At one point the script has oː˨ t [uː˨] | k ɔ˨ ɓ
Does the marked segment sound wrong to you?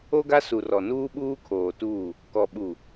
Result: yes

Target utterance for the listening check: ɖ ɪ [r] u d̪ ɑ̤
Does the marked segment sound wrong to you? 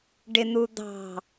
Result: yes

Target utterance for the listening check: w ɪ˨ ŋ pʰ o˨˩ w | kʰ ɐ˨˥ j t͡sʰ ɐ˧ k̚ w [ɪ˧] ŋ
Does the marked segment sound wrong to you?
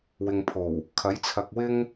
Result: yes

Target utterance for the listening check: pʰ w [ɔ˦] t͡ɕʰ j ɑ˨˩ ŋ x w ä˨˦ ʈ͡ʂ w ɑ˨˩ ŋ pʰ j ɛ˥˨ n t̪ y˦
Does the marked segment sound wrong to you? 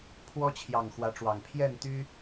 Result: no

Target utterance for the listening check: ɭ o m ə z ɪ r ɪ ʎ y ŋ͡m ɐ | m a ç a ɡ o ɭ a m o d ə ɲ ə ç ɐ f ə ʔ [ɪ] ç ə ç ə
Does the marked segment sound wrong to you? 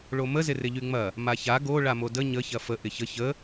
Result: no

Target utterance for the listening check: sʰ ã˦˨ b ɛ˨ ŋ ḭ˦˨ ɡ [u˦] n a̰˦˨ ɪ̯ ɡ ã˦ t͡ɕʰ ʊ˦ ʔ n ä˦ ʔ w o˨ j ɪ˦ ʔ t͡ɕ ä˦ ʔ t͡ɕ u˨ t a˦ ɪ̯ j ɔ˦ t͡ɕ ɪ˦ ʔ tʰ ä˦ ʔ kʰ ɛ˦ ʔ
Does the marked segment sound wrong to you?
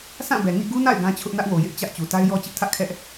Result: no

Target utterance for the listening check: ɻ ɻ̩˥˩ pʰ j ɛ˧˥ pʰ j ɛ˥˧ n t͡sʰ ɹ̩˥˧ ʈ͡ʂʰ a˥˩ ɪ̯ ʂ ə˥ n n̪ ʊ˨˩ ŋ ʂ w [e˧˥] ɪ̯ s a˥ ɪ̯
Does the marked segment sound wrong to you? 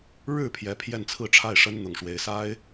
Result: no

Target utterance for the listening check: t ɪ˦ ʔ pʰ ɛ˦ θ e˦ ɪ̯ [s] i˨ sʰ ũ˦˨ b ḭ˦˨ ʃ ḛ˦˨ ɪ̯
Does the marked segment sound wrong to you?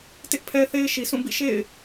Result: yes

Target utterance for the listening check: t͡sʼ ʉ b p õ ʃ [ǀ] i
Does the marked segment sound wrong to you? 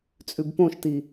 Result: yes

